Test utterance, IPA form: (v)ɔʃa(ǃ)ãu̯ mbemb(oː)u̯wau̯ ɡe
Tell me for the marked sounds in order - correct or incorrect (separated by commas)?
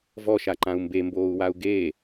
correct, correct, correct